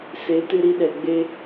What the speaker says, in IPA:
se˨˦ tɨ˧ɾi˧ɗɛ˨ ɡ͡be˧

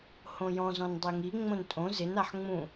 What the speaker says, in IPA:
hõjɔ̃ zɔ̃ndˤeŋi ŋ͡mõntʼõ zɪn aħŋ͡mũ

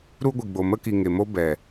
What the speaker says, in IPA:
ɾu˦ɡʷi˨ɡ͡bo˨ mə˦ki˨ŋe˨mo˦ bɛ˨

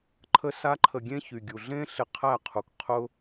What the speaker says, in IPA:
ǃʰə˦sa˦ǃʰə˧ɡʲẽ˦ çy˨ɡʲu˨ɮẽ˦ ɬe˧qʰæ˦˨qʰu˨k qʰʊ˦

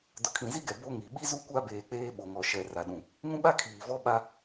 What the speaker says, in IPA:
dʊ˨kʰĩ˨zi˦ɡɛ˨ bo˦ŋi˨ ɓi˦zu˦kʷa˦ beː˨k͡peː˦ ɓo˨ŋɔ˨ʃɛ˨ ra˨ɗũ˨ | ŋũ˦ɓa˦ kʰiː˨vɔ˦ ɓa˦

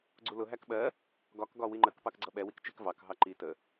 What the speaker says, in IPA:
ɡ͡ǀulʊ ɦækɓɜ | ɡɒk ɡɒwiŋ͡ǃək pɑkɡ͡ǀʌɓɛ wikt͡ʃɪk vɑk ɦɑǃi tə

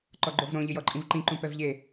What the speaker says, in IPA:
ǃɔɡ͡ǃovɾõ ʎɪjɔǃʼĩvǃĩ ǃũpɛvʎe

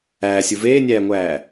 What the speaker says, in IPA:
æːsʲu veːnʲæːŋʷæː

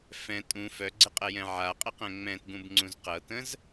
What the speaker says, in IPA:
fɛ̃ tʼũ fœɡ͡ǀɪqʼɛjɛ̃ ʕaqʼəqɛ̃ ŋ͡mɛ̃tɡũbŋ͡ǀũz qɤtə̃z

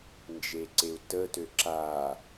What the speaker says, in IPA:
nd͡ʒeǀeu̯tə tøǁa

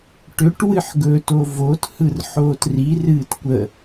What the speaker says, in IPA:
ʈʏʈ wɨħɡɵto vothɯr ħoːtri rɨːtkʷə

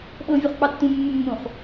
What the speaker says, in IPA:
ɓɤ vʲuχk͡pɑtːũ mːumːũχ

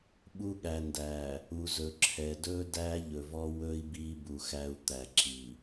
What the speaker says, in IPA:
ɓu˦ɠæ˨ndæ˨ | u˨ zɵ˨ǁʰɛ˨ dɵ˦ dæ˦ʎɵ˨vɔ˦ wɵ˦i̯ bi˦bu˨xæ˦u̯ t̪æ˨ǁi˨

